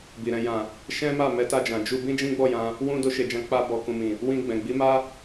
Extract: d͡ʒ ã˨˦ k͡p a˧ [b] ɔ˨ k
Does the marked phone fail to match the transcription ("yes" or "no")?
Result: no